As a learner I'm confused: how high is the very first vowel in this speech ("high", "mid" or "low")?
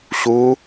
high